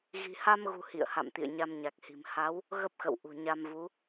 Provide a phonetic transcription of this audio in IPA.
ɣi̤˨˩ha˧mɣṳ˨˩ hḭ˧˨ə̯ha̰˧˨m t̪ḭ˧˨ə̯ɲa˧mɲa˨˩k̚hi̤˨˩m ha˨˦w | ɣə˦˥p̚xə̰˧˨w ʔṳ˨˩ɲa˧mvu˨˦

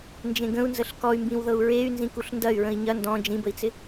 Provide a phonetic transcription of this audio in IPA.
nd͡ʒẽɡə̃u̯nzəɬ kɔy̯mbĩwðɤu̯ ɹey̯ nzĩkuɬndɐy̯ ɹə̃i̯ɲɐ ndɔ̃ d͡ʒĩbəi̯t͡sɪ

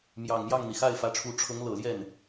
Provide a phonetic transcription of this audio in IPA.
mjɑ˨˩ŋmjɑ˥˩ŋn̪i˩ xa˥˩ɪ̯fä˧˥ʈ͡ʂʰu˧˥ ʈ͡ʂʰɤ˧˥ŋlɤ˨˩ljɛ˥˩n

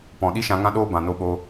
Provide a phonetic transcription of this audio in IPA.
pɔ̃˨ɗi˦ʃã˧ ŋã˦ɗoː˦ bã˨no˧ɓo˧

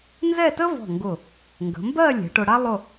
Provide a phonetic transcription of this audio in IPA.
nzɛ˥˧tə˥vɔ̤˧˩ŋɡʊ˧˩ | ŋɡə̤˩˧ mbɜ˥˧lʲɛ̤˩˧ ʈʊ˧ɽa˥ lˠʊ˥˧

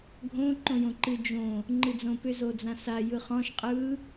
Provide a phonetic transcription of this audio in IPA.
ɡʱõ ǃõjõǃɨ d͡ʒõ | ŋ͡ǃɨd͡zõpʏ zod͡zãsa jɯχɔ̃ʃ qʼɯ

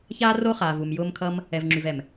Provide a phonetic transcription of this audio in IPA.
çaː˦ro˦χaː˨v u˨mjʊː˧m kʰʌ˦m | ɛ˨vŋ͡ǁy˨vɛ˨m

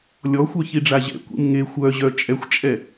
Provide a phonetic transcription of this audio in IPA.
lʲɔxʷœ çiɖ͡ʐaʑɛ̰ kʷḭmŋe xʷœʑœ t͡ʃʼɛxʷt͡ʃʼɛ

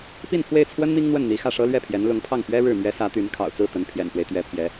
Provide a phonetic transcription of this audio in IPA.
pi˥˧npʰwe˥˩ɪ̯t͡sʰwə˥n mi˥ŋn̪wə˥˩n n̪i˧˥xä˥˩ʂɤ˥ lɥɛ˥˩pʰjɛ˧˥nlʊ˧˥ŋpʰɑ˥˩ŋ pɥɛ˥ ɻɻ̩˥˩ mɥɛ˧˥ sä˧˥t̪y˧˥nkʰɑ̰˨˩ʊ̯t͡sɹ̩˥˩ t̪ə˧˥npʰjɛ̰˨˩nfwe˦ɪ̯ t̪ɥɛ˧˥pʰjɛ˧˥

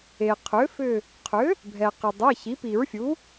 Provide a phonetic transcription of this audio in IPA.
e˩qʰʏ˩˥fʏ˧˩ | qʰʏ˩˥ | bʱɛ˩qɪ˩ dˤɛ˩˧˩ çi˩˥pi˨˩˦ɹfʲu˩˥

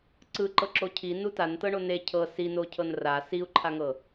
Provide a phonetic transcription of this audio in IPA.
ǀɯ ǃɤǁocʰi nutan tɤɳone cʰɤ sino cʰɤnra siu̯ǃʰaŋɤ

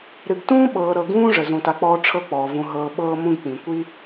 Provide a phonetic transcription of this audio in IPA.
ɾɨ˨ɡtũː˥ɓɤː˨ɾɤ˨ ɡũː˥ʐə˩ zũ˨ta˨k͡pɔː˦ ʈ͡ʂʰɤ˦k͡pɔː˩vũ˨ ɦɤː˨ ɓɤː˦mũ˦ɡk͡pĩ˩kʷi˥

